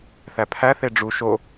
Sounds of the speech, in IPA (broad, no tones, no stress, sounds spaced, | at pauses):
θ æ pʰ æ θ e ɖ͡ʐ u ʃ o